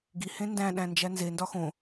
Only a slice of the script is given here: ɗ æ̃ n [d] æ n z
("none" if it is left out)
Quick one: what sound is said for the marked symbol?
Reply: d͡ʒ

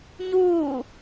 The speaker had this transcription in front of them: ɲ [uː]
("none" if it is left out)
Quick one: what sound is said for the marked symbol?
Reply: uː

